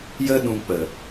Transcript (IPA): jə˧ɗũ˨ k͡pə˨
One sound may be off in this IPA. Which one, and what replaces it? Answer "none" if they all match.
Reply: none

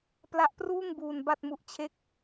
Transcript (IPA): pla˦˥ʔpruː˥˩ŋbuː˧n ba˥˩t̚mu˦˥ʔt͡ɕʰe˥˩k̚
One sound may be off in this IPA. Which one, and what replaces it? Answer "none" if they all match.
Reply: none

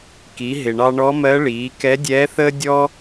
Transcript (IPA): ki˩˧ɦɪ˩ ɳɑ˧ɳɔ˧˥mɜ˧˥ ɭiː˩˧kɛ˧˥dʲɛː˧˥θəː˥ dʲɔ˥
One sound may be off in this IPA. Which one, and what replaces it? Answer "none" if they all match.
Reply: none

